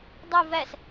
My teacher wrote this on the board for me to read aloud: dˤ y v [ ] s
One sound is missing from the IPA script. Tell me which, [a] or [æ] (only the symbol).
æ